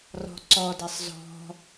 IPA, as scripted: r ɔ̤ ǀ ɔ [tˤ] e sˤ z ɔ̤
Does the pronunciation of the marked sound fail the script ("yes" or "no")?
yes